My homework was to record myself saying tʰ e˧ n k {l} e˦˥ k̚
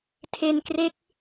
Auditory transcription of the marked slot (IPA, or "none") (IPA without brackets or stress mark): r